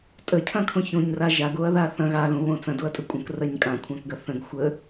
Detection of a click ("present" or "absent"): absent